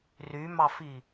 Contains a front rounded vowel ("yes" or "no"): yes